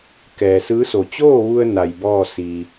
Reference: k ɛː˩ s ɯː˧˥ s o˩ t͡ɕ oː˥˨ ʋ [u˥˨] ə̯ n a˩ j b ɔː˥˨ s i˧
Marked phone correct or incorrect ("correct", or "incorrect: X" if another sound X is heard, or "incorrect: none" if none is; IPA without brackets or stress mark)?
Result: incorrect: u˧